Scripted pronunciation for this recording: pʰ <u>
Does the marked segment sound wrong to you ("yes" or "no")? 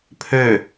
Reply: yes